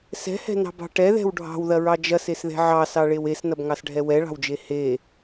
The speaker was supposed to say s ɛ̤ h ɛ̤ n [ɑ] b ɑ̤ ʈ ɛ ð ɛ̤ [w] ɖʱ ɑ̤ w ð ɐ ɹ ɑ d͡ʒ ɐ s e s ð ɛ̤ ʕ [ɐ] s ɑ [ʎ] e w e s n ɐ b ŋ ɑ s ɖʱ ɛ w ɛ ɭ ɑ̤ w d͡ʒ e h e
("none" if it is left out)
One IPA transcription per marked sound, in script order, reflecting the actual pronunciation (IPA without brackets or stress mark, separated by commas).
ɑ̤, w, ɑ, ɭ